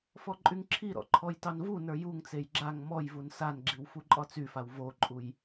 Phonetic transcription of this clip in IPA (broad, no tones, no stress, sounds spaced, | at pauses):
f ɔ ǃʼ y ŋ ǁʰ i ɾ ɔ̰ ǃʰ ɔ j t ɑ n v u n ə˞ j u ŋ t͡s e j ɡ͡ǁ a ŋ m ɔ j v u n s a n ɡ͡ǁ i w f u ǃʼ ɒ t͡s y f a w v o ǃʼ u j